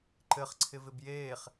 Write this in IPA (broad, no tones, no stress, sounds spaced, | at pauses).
ǃ ɘ χ ǀʰ ɪ v ɪ b j eː χ